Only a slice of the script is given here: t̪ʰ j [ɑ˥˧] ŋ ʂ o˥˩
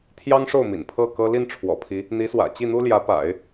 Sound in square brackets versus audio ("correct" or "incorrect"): incorrect